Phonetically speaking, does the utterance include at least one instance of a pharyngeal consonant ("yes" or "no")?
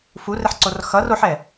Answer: yes